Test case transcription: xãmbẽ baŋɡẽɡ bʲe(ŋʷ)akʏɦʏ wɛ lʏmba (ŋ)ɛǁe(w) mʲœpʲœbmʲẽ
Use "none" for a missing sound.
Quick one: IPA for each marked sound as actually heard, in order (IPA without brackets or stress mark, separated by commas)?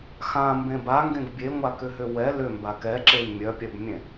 ŋʷ, k, w